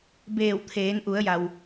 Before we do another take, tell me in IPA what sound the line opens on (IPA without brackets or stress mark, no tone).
b